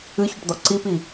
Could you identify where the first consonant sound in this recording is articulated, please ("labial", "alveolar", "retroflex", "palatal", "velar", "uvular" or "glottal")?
palatal